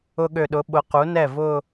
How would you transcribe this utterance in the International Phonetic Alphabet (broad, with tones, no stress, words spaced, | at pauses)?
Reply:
ʊ˧ɠø˨˩ɗʊ˩˥ ɓʊ˩˥ qu˩˥nɛ˥˩vʊ˥˧